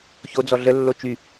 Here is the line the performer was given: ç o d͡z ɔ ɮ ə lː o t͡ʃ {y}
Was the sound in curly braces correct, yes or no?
yes